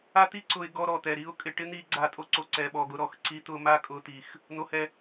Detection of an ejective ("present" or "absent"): present